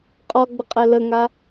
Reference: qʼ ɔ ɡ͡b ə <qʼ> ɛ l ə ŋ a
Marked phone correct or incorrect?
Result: correct